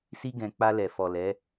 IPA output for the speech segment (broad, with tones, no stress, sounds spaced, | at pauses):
s i˦ ɡ ɛ̃˧ k͡p a˧ l ɛ˨ f ɔ˨ l ɛ˨˦